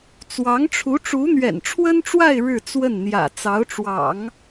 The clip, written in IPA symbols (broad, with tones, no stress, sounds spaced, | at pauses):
t͡s w ɑ˧˥ ŋ ʈ͡ʂʰ u˧˥ ʈ͡ʂ u˧˥ n̪ ɥ ɛ̰˨˩ n ʈ͡ʂʰ w ə˥ n ʈ͡ʂ w a˥˧ ɪ̯ ɻ ɻ̩˥˧ t͡s w ə˥˩ n n̪ j ä̰˨˩ t͡s ɑ˧˥ ʊ̯ ʈ͡ʂ w ɑ̰˨˩˦ ŋ